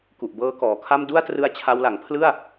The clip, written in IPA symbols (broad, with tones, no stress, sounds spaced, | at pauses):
k u˨˩ ʔ b ɤː˦˥ k ɔː˩˦ kʰ a˥˩ m d u˥˩ a̯ t r ɯ˦˥ a̯ t͡ɕʰ a˧ w l a˩˦ ŋ pʰ l ɯ˥˩ a̯